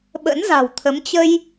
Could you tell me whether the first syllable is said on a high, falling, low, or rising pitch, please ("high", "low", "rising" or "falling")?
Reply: rising